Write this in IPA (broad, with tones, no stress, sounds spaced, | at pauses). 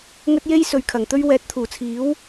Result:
ŋ ɵ˥ t̚ j e˥ j s ɵ˨ ɥ kʰ ɐ˨˩ ŋ t̪ ɵ˥ ɥ w ɛː˨˥ t̚ t̪ʰ uː˨˩ t͡sʰ iː˨˥ w